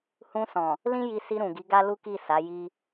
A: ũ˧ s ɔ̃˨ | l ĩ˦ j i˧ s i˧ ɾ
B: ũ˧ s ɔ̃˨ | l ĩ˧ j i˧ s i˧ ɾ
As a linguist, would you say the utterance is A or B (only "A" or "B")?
A